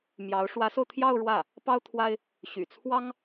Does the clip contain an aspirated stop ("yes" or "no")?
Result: yes